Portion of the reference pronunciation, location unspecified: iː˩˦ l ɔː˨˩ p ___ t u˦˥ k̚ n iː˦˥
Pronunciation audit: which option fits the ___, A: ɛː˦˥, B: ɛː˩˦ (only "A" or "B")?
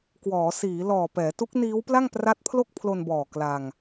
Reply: B